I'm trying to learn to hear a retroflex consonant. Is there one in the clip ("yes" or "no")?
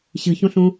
no